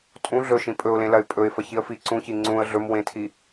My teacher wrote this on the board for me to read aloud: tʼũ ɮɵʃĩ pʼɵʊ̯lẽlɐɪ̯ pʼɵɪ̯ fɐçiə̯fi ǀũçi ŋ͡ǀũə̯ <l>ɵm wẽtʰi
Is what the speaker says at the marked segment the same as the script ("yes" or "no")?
no